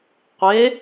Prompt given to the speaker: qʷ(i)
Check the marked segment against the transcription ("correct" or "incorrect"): incorrect